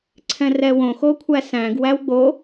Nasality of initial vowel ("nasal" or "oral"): nasal